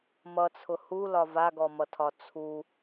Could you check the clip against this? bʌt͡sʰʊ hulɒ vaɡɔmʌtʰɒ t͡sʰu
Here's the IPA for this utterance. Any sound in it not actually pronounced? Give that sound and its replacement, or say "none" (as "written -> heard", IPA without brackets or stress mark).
b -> m